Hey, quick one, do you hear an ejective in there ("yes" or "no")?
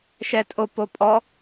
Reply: yes